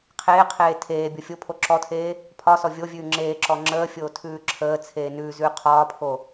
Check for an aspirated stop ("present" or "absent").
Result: present